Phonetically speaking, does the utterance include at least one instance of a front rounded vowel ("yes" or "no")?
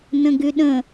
yes